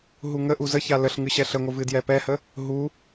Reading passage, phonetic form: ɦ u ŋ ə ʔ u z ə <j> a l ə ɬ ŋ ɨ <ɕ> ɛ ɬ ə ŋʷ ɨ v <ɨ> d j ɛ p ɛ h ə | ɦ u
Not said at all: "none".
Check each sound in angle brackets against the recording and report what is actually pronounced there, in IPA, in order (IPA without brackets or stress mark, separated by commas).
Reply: ç, ɕ, ɨ